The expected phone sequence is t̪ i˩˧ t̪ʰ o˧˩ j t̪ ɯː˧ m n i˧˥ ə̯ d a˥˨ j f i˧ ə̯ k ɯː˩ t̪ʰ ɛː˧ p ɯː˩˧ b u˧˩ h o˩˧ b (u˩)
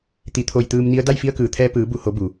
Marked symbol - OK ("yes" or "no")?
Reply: yes